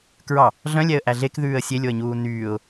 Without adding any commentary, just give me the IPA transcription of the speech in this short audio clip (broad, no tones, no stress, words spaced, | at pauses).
kɹɑ | ɮœ̃lʲɛə̯ʔæ ɮekðʉːə̯ sʲelʲoə̯ɲuː nyːʊ̯